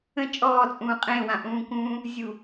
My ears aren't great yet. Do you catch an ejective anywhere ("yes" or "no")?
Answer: yes